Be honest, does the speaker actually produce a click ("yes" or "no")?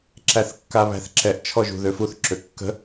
yes